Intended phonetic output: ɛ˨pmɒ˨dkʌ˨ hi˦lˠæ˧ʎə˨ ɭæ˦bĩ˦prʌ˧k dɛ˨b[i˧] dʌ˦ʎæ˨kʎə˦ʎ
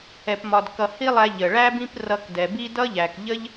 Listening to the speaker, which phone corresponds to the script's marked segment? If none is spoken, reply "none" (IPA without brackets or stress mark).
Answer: i˧